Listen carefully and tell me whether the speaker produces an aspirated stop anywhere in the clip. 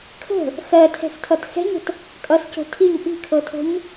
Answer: yes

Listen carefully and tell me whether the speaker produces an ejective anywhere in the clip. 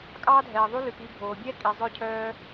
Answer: yes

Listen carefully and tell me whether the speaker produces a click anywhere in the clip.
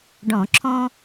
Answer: yes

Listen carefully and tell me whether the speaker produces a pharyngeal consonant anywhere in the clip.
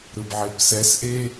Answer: yes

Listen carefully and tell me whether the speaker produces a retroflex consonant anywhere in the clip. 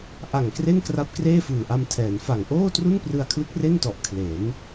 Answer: no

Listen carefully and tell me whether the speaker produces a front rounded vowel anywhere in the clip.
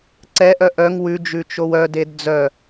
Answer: yes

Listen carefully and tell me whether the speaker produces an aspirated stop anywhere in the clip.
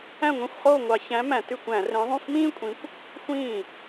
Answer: no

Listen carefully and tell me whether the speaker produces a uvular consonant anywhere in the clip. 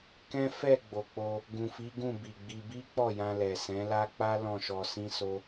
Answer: no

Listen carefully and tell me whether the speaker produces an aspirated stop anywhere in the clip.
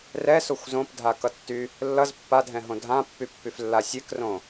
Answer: no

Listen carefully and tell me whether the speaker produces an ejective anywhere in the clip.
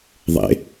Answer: no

